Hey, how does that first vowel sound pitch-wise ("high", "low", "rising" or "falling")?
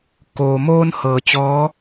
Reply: low